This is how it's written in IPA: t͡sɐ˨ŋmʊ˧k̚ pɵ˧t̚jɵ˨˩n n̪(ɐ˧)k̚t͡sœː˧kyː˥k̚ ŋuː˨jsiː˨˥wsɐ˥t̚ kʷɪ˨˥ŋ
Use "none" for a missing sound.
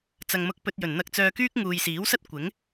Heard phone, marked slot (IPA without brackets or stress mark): ɐ˧